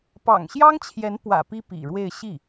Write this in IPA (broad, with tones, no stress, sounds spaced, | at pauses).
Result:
p ɑ̰˨˩ ŋ ɕ j ɑ˥ ŋ t͡ɕʰ j ɛ˧˥ n p w ä̰˨˩ p i˥ p ḭ˨˩ ɻ w e˥˧ ɪ̯ ɕ i˥˩